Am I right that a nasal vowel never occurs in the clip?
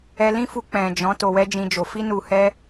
no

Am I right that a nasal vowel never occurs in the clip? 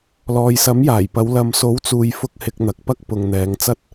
yes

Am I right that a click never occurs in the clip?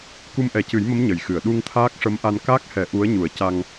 yes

